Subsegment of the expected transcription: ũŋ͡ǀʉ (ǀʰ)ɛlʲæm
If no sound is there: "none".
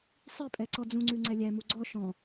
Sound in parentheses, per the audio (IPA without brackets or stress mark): ŋ͡ǀ